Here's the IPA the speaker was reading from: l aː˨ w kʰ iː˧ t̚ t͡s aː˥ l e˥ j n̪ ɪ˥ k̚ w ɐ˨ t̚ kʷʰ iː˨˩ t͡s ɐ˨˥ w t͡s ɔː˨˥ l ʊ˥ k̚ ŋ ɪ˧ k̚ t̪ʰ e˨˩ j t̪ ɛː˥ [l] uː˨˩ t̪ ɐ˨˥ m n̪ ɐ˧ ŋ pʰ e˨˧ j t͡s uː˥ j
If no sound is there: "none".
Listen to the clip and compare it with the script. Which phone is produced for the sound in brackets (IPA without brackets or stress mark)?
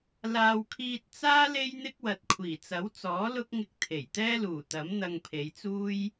l